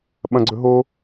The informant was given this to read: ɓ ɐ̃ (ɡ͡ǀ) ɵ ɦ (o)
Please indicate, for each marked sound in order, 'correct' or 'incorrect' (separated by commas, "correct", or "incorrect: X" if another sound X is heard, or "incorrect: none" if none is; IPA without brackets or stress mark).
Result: correct, correct